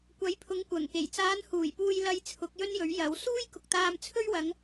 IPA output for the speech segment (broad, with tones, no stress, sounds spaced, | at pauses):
kʷ ɐ˨˥ j pʰ ʊ˨˧ ŋ kʷ ɐ˨˩ ŋ k e˨˩ j t͡s aː˨˧ n h uː˨˩ j p uː˨ j l ɐ˨ j t͡sʰ ʊ˨˥ k̚ j ɵ˥ n j ɵ˨˥ ɥ j ɐ˨˥ w s uː˥ j k ʊ˨ k̚ t̪ aː˧ m t͡sʰ ɵ˥ ɥ w ɐ˨˧ ŋ